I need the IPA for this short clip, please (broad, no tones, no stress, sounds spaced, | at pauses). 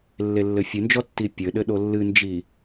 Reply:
lː e lː ɘ fʲ ɨ n d͡ʒ ɔ tː i pʲ ɘ ɗ ɘ ɗ o lː ɨ n d͡ʒ i